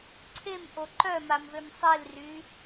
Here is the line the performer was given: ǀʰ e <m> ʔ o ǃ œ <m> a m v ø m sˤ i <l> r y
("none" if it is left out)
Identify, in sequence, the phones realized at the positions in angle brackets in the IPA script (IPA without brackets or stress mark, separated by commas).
m, m, l